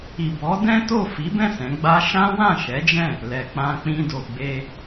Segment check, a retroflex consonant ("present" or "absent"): absent